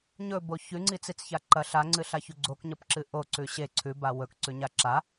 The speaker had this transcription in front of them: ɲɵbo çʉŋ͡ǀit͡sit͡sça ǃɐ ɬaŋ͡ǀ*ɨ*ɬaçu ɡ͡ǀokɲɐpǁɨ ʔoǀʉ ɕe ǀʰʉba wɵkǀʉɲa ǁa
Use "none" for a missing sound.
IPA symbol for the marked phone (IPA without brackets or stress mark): ɨ